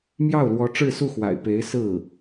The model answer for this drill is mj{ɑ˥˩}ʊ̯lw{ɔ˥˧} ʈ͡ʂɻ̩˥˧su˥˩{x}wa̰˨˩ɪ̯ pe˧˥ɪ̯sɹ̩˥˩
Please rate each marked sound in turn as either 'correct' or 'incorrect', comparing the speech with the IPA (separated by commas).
correct, incorrect, correct